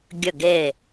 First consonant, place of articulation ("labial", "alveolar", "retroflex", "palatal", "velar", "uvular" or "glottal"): velar